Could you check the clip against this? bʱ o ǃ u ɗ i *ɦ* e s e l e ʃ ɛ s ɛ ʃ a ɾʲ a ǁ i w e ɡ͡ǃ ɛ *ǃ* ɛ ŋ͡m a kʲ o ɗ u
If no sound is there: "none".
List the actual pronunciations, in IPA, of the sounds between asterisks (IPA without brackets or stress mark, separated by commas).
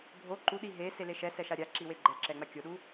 ɦ, ǁ